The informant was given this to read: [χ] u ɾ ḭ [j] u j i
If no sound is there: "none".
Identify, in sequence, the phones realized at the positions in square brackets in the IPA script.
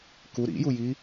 k, j

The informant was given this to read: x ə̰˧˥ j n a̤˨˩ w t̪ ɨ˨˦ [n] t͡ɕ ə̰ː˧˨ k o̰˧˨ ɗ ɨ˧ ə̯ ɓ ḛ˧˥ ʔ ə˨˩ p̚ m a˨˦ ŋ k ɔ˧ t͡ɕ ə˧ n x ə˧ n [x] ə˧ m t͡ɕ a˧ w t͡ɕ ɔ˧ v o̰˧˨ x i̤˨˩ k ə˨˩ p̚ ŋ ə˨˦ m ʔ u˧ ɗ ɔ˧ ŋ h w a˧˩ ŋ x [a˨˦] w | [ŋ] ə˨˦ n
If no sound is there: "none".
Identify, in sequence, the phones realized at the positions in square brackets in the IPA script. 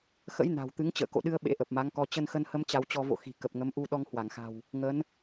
ŋ, h, a̤˨˩, ŋ

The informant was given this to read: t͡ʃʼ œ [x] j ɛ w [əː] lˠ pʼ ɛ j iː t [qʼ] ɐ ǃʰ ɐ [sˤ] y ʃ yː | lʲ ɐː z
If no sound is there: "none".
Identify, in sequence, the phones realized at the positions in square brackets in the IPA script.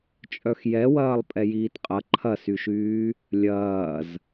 x, ɐː, qʼ, s

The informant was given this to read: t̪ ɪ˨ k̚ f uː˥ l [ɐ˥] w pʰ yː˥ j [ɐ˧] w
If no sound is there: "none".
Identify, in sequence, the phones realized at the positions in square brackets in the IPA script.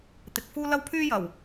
ɐ˥, ɐ˨˩

